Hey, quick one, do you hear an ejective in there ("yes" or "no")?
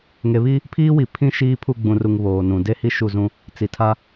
no